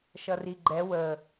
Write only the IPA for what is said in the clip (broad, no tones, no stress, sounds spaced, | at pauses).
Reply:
ʃ ʌ r i ɡ͡ǃ ɛ w ə